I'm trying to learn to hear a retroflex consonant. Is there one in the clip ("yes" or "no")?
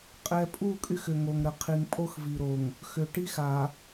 yes